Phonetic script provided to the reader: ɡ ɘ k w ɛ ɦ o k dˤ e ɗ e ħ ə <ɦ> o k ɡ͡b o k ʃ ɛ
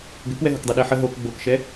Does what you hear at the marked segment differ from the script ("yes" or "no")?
no